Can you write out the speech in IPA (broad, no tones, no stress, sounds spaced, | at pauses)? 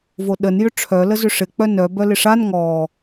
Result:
v o ɗ ə n j ʏ ʈ͡ʂʰ œ l ə z ʏ ʂ ɪ k͡p œ n œ b œ l ɪ ʂ a n ŋ ɔ